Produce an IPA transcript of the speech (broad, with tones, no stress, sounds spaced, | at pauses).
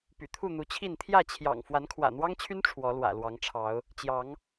p y̰˨˩ t̪ʰ u˥˨ n̪ u˨˦ t͡ɕʰ i˥˨ n t̪ʰ j ä˥˨ t͡ɕʰ j ɑ̰˨˩ ŋ f w a˨˦ n kʰ w ä̰˨˩ n̪ w ɑ˦ ŋ t͡ɕʰ y˦ n ʈ͡ʂʰ w ɔ˨˦ l w ä̰˨˩ l w ɑ˨˦ ŋ ʈ͡ʂʰ ɑ˨˦ ʊ̯ | t͡ɕ j ɑ˨˦ ŋ